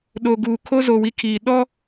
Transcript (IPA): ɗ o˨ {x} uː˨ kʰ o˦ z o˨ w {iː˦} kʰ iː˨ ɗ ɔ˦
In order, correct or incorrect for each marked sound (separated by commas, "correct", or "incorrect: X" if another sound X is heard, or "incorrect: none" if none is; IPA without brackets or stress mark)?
incorrect: ɡ, incorrect: i˦